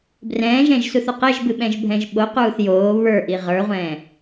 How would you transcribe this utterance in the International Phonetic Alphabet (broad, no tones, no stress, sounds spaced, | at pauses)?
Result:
b r ɛ̃ː ʒ ɛ̃ ʒ s u θ u q e ʒ b ɨ ɓ ɛ̃ ʒ bʱ ɛ̃ ʒ ɓ o q uː θ j oː β ə˞ ʔ i ʁ ə˞ ʁʷ ɛ̃ː